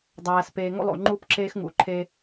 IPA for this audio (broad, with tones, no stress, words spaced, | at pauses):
dˤæː˨speː˨ ŋo̰˦lˠo̰˨ŋ͡ǃuː˦pǁeː˦x ŋṵ˨ǃʰe˦